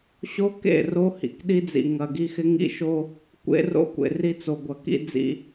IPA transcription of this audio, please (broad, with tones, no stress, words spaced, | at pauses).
ɕo˦kḛ˦˨ ro˦hḭ˨kɗi˦d͡zḭ˨ ŋɐ˨ɡi˦ xɪ˦ŋḭ˦ʃo˦ | kʷḛ˦ro̰˦kʷḛ˨ ri˦t͡so˨ɡʷɐ˨ kḭ˦d͡zḭ˨